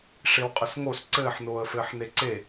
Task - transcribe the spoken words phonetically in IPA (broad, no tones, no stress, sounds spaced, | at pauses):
ʂ e w qʼ ɘ s ŋ o s ǀ ɘː ħ n oː ə̯ f ɘː ħ n e ǀ e